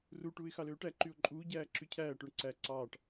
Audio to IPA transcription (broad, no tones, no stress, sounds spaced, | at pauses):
r u ʈ uː ɪ̯ x ɑ l øː ʈ æ ǃ y ʊ̯ ǃʼ uː ɟ æː ǁ y cʰ æː ʈ ø ɳ ǀ æ ǀ ɑː ʈ